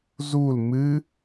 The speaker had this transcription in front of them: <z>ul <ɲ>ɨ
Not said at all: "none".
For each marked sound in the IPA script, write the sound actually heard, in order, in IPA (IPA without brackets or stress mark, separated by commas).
z, m